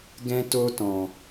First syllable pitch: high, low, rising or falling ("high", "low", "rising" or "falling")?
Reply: high